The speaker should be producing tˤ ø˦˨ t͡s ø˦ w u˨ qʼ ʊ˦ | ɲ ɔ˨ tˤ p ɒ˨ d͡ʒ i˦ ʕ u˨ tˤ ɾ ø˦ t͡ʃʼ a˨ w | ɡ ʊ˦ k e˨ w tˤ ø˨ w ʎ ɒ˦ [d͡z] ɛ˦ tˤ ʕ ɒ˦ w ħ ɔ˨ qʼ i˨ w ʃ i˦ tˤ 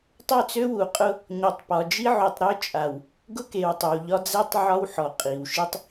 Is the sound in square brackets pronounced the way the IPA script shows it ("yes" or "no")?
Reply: yes